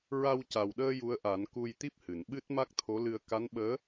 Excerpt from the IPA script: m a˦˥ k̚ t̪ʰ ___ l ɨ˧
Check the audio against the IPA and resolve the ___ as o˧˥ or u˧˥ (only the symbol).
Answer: o˧˥